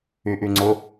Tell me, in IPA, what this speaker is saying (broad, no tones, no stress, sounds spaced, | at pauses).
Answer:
y ʔ y ŋ͡ǀ ʊ